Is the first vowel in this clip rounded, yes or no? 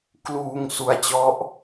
yes